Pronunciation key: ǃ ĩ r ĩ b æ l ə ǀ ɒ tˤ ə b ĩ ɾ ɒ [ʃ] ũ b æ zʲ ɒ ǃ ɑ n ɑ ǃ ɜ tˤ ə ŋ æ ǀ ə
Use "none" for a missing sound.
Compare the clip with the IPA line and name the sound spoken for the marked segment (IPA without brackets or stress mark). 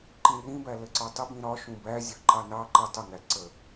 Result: ʃ